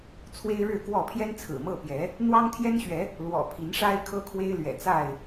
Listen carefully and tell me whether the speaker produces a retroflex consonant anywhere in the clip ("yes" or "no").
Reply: yes